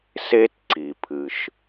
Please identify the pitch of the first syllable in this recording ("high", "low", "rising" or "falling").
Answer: high